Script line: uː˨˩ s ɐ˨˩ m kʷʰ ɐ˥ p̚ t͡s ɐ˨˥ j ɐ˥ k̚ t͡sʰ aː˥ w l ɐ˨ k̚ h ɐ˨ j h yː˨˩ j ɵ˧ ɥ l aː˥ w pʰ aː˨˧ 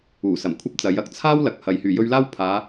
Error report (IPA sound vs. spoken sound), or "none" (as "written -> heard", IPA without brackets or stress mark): none